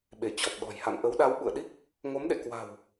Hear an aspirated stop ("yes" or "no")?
no